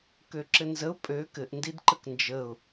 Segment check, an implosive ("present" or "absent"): absent